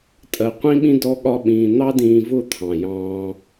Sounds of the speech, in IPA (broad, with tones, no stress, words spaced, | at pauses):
tʼɜ˧qʷĩ˦ɓĩ˦ dɔ˦ ɠɒ˦ɓĩː˧ n̪ɑ˦dĩː˧ vʊ˦˨ t̪ʰɑ̃˨jɑ̃ː˧